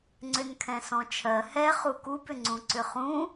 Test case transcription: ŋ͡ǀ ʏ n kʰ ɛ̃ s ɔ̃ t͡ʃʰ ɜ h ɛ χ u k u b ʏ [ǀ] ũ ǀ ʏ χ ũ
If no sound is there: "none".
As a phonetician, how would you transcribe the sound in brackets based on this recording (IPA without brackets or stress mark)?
ŋ͡ǀ